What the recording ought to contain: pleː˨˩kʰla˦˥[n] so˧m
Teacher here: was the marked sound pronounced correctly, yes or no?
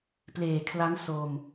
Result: yes